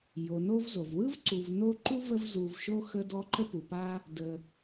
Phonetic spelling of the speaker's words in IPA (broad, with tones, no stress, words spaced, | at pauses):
jo˩ no˦v zo˩vwɯ˥vǀu˨v no˦ ǃu˥və˦v zu˨vʃo˦ xə˥dɔ˥ ǃə˦pu˩pa˦ | də˨